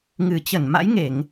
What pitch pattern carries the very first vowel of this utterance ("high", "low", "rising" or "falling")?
low